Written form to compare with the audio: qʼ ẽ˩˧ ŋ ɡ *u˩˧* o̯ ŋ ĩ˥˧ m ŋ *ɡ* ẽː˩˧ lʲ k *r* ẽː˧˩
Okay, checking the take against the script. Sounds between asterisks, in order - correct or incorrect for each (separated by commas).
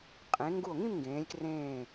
incorrect, correct, correct